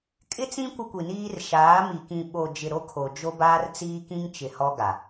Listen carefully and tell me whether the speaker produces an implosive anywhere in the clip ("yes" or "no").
yes